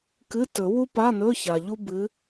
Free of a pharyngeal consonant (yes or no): yes